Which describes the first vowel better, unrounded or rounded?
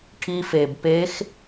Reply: unrounded